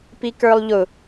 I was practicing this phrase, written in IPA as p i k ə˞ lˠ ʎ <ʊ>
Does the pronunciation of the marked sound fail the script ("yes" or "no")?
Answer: no